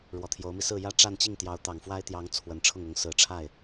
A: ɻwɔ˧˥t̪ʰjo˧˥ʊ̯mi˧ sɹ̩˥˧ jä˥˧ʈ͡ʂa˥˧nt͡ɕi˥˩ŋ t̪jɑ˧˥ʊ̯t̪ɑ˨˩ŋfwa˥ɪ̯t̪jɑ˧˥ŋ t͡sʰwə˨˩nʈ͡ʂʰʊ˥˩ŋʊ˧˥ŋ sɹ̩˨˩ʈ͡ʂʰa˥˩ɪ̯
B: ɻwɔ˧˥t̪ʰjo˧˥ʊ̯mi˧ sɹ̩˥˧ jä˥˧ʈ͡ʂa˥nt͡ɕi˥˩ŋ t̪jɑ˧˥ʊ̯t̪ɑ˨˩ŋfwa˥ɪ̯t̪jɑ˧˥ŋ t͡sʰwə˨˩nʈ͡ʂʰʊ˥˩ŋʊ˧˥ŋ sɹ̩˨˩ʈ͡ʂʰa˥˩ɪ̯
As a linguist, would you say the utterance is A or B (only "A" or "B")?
A